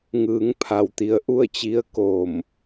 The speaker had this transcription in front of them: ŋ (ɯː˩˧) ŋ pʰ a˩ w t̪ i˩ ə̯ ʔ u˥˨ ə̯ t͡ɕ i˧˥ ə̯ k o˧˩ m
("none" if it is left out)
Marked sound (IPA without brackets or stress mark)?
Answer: ɯː˩˧